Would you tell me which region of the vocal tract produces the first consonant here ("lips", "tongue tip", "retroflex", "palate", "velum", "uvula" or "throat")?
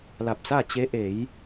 tongue tip